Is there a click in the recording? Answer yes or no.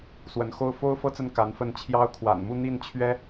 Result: no